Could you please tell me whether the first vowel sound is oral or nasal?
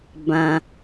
nasal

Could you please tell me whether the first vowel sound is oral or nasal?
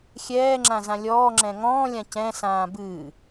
oral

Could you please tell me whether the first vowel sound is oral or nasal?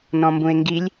nasal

